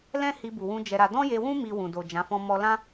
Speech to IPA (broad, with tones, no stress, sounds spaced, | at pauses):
l ɛ̃˦ h i˧ b u˨ w ũ˧ d͡ʒ ɛ˧ ɾ a˧ d ɔ̃˦ j e˧ w ũ˦ m i˧ w ũ˨ d o˨ d͡ʒ ã˨˦ f ɔ̃˦ m ɔ˦ l ã˦